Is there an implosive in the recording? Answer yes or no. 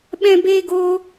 yes